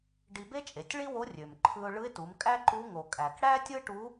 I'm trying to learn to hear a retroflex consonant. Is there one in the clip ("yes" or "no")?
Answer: yes